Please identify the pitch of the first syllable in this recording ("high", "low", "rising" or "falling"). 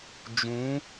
rising